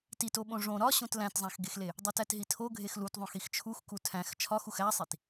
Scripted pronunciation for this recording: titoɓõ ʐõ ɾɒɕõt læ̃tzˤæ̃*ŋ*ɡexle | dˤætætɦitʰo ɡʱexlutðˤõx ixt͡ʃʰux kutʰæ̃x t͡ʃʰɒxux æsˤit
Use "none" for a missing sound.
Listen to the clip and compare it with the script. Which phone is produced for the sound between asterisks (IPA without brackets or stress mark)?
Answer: x